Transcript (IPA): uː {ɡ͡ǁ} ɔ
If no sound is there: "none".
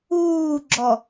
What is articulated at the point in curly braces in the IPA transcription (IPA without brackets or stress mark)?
ɡ͡ǁ